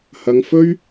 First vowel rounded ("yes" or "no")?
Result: no